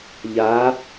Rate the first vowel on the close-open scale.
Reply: open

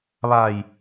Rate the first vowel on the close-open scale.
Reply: open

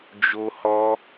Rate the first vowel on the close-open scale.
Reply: mid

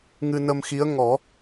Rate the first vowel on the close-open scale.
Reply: close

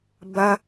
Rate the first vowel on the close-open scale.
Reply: open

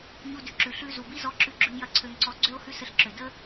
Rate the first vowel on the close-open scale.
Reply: close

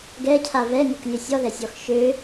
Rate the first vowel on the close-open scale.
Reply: mid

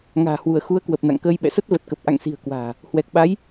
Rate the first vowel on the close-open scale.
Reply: open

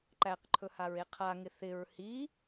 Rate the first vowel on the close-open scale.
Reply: open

